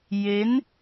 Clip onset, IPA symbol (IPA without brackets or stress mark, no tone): j